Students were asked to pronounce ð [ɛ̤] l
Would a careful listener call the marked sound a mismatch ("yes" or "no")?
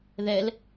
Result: yes